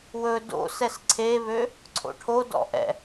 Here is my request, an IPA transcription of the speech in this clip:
wɵ do̰ sɛsǀʰeβø | ǀʰo̰ʈʰo dɔ̰ʔɛ̰

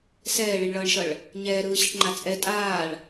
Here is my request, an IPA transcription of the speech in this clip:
sɛːɭiɳɭʌːɳʃʌɭ | ɲɛːɾɯːɕiʈŋ͡ǃa t͡sʼɛ tʼaːɭ

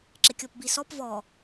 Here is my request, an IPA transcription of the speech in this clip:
ǁɪkʲɔpbisɔp vɔ

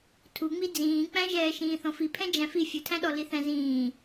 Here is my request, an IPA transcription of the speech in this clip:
tʰuŋ͡mi d͡zĩːk͡pæ̃ʒɛː ʃĩːθɔ̃fipʰɛ̃ d͡ʒæ̃fi fʲʊtʰæ̃ɗɔ liθæ̃zĩː

